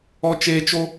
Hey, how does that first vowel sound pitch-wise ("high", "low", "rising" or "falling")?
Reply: high